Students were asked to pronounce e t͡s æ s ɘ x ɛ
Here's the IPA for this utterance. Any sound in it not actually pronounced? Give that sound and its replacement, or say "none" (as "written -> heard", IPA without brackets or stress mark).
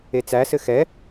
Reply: none